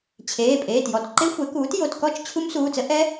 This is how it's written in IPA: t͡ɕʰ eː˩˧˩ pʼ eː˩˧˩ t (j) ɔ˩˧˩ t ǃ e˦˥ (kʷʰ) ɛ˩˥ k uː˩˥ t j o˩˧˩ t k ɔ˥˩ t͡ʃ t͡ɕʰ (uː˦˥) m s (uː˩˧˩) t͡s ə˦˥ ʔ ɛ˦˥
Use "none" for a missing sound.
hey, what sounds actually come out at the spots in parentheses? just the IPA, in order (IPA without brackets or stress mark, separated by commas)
j, xʷ, u˦˥, uː˩˧˩